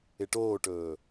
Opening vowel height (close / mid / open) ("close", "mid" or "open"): close